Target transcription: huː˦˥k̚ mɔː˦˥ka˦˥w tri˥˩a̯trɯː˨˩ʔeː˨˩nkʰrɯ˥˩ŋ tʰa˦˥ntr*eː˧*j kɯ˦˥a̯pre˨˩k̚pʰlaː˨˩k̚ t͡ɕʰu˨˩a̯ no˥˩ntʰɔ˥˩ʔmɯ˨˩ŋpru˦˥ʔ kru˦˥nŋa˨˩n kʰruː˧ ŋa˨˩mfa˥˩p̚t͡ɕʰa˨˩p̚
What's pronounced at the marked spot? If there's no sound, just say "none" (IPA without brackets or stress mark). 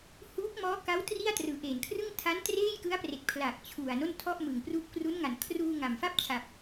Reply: eː˥˩